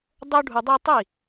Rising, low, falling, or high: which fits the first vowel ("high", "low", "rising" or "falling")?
high